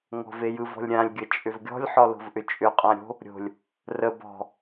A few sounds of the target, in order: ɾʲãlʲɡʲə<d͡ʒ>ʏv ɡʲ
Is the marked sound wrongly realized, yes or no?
yes